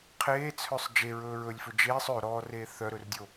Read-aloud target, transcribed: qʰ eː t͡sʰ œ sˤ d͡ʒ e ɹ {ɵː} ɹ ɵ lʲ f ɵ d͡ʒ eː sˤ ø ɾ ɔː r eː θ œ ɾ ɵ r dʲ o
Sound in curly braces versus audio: correct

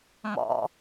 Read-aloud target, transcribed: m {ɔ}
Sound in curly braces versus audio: incorrect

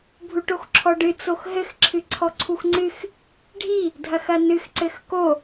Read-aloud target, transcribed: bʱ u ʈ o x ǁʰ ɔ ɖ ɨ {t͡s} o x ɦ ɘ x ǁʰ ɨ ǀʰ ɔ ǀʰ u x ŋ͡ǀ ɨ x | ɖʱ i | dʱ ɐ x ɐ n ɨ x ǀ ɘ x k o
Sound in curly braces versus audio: correct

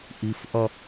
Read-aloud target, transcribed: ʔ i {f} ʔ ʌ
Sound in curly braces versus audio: correct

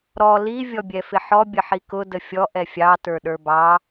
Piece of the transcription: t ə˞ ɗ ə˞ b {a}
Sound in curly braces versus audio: incorrect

